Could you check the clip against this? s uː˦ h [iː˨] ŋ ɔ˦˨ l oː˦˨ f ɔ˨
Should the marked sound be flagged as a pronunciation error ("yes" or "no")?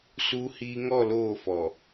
yes